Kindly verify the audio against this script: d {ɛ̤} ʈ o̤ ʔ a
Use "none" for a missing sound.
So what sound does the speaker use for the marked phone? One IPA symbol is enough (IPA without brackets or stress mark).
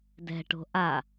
ɛ̤